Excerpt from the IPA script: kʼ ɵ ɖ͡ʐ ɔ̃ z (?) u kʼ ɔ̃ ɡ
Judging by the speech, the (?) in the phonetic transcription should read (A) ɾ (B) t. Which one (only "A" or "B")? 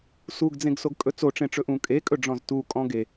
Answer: B